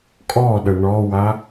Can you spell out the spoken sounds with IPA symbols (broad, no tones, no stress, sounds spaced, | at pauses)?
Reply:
kʼ ɔ ɗ ə ɳ ɔ w a